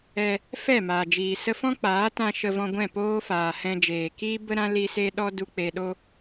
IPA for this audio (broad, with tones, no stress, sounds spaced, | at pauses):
ɛ˧ | f ɛ˦˨ m aː˨ d͡ʒ iː˨ s ə˧ f ɔ̃˦ k͡p aː˨˦ t ã˧ ʃ ə˧ v ɔ̃˧ ɡʷ ɛ̃˦˨ p oː˦ f aː˨ h ɛ̃˧ d͡ʒ eː˨ k iː˦ b ə˦ ɾ ã˦ l i˦ s e˦ ɗ ɔ˦ d u˧ k͡p e˧ ɗ o˦